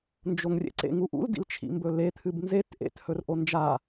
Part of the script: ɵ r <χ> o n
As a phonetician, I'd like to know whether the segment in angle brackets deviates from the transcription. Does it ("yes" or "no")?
yes